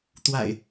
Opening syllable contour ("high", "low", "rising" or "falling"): low